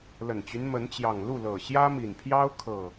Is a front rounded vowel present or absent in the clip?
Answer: present